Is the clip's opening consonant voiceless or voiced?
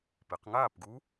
voiceless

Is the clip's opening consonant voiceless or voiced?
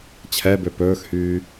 voiceless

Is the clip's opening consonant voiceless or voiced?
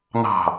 voiced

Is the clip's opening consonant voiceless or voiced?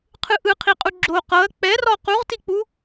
voiceless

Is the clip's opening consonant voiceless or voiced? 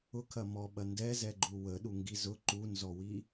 voiceless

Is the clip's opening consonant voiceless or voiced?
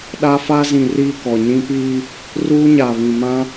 voiced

